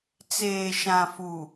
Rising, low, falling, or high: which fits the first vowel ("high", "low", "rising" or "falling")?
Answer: low